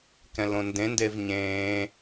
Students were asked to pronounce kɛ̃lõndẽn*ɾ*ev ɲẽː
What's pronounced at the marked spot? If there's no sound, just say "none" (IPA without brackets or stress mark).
d